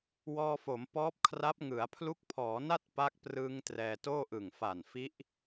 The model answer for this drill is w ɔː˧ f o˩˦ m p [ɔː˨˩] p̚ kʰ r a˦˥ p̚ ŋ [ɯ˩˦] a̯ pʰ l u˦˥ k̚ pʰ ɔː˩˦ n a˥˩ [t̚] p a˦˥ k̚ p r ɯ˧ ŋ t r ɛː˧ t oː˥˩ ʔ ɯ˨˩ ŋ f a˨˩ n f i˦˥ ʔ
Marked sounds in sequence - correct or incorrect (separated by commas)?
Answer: incorrect, correct, correct